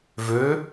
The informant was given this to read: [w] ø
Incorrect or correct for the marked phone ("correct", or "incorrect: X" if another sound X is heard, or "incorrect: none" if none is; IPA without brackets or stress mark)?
incorrect: v